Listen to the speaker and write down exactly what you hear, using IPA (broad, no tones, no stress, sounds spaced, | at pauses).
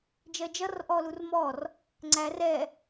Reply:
d͡ʒ ɜ d͡ʒ ʌ r ʔ ɔ l u r m ɔ r | ŋ͡ǀ æ r ɛ